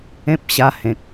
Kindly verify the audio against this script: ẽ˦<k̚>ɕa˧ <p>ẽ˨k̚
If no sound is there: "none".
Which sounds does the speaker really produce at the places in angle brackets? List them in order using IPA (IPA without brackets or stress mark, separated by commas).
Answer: p̚, h